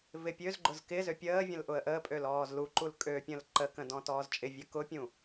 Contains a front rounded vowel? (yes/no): yes